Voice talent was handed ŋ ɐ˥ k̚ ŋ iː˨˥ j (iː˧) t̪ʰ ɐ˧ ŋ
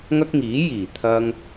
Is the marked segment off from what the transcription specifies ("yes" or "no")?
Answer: yes